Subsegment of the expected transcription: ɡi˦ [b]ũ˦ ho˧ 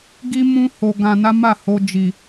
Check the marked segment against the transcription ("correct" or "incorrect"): incorrect